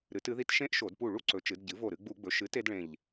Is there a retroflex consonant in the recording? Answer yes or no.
yes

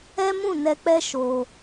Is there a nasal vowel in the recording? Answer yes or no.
yes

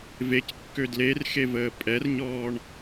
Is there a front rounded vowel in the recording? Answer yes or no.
yes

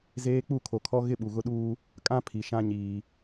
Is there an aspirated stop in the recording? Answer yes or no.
yes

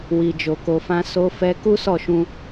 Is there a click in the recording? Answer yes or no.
no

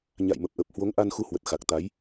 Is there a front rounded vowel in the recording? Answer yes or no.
no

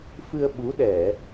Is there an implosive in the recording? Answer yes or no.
yes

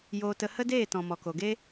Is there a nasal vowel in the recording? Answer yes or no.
yes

